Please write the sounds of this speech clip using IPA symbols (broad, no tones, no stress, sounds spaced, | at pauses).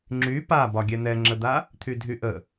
ŋ͡ǁ y p a b ɒ ɡʲ ɛ n̪ ɛ ŋ͡ǁ ə d̪ a | t̪ʰ y dʱ y ʔ ə